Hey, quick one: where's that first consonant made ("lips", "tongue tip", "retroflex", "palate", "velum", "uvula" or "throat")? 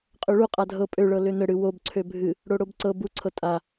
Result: uvula